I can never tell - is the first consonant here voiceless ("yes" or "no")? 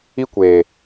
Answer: yes